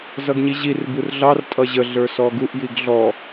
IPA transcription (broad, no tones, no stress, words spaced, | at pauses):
zʌɡɲiʑir burɮɑr tʼʌʑə ɮə˞sɔɡuʔ jiɡɮɔ